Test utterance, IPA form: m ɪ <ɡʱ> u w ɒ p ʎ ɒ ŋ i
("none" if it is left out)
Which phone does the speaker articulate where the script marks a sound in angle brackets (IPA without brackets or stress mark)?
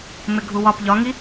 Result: ɡʱ